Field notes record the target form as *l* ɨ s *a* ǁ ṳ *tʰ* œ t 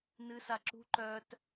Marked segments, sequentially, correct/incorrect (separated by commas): incorrect, correct, incorrect